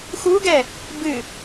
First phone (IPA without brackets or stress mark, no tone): x